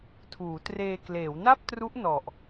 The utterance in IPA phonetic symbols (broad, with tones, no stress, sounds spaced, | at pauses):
tʰ uː˩˦ t r eː˧ k l eː˩˦ w n a˥˩ p̚ t r u˦˥ ʔ n ɔ˨˩ ʔ